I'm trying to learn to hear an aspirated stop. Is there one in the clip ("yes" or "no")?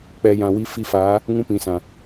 no